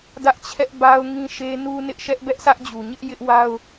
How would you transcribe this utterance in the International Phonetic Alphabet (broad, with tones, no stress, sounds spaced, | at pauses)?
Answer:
d ä˦ ʔ t͡ɕʰ ɛ˦ ʔ b a˦ ʊ̯ ŋ ĩ˦ ʃ e˦ n u˦ n ɪ˦ ʔ ʃ ɛ˦ ʔ b ɛ˦ ʔ sʰ ä˦ ʔ d͡ʑ u˨ ɲ ɪ˦ ʔ j ɪ˦ ʔ w a˦ ʊ̯